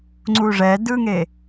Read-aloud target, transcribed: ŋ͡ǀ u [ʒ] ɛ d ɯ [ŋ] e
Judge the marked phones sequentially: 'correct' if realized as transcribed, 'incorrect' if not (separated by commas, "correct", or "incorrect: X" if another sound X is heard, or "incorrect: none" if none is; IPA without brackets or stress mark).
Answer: incorrect: ʐ, correct